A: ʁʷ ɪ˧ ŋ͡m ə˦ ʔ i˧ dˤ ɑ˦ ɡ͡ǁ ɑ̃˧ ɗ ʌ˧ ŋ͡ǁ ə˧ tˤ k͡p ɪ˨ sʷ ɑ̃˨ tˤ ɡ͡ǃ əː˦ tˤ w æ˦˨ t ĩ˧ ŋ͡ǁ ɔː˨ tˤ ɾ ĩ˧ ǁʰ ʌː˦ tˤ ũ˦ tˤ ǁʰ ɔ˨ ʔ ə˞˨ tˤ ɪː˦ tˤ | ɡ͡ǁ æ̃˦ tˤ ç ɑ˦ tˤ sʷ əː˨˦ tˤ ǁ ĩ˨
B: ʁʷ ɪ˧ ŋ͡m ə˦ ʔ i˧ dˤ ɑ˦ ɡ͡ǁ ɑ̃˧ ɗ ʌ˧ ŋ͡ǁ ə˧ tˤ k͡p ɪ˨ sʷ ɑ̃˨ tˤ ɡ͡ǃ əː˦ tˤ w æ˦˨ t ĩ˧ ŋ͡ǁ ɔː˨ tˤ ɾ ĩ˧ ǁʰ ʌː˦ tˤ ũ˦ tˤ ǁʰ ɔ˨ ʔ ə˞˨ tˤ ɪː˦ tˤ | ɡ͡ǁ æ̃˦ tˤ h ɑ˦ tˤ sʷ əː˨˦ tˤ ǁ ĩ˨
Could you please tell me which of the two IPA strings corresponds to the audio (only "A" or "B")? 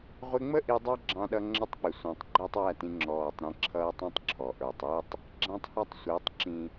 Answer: B